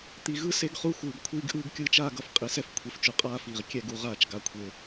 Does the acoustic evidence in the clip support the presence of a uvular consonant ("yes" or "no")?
yes